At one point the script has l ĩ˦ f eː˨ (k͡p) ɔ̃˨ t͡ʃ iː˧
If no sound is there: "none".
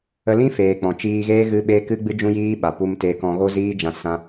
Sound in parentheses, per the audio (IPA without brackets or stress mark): k͡p